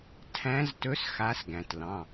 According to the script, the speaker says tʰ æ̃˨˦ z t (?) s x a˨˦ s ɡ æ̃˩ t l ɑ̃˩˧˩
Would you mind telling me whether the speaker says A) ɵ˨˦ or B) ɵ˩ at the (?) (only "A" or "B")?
A